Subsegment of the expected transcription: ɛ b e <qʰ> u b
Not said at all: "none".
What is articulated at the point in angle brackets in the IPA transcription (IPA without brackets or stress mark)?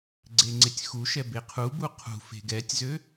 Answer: qʰ